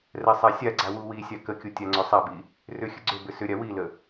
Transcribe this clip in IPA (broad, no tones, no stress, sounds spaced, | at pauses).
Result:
r ɛ sˤ a sʲ a ɡ͡ǀ a w u w i sʲ a k ə kʲ u tʲ a ŋ͡ǀ ʏ sˤ a b i | r ʏ xʲ ə ɡ͡ǀ ʏ b ʏ s ʏ ɾʲ a w i l ə